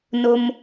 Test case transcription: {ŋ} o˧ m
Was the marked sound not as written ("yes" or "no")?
yes